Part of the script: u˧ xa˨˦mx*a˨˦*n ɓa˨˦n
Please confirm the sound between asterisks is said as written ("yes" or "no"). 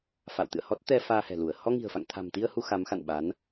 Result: no